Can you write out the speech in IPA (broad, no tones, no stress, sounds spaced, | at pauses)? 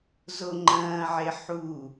z o ŋ͡ǃ ɐ̃ː ʕ e ħ u